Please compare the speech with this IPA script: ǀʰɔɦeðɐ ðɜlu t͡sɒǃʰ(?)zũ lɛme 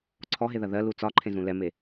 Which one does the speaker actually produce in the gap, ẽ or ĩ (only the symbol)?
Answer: ẽ